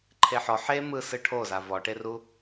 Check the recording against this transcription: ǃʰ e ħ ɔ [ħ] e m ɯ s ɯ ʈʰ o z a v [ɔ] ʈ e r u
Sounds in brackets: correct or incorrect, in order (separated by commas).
correct, correct